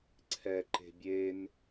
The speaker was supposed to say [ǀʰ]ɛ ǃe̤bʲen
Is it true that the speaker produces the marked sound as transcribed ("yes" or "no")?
yes